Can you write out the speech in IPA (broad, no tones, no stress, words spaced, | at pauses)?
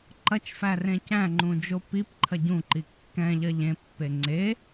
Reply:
ǃɐt͡ʃfæ rẽcæ̃ŋ͡ǃũ d͡ʒopipǃʰɐ ɟũǃi kːɛ̃ʎɐ ʎẽpːe ŋ͡ǀe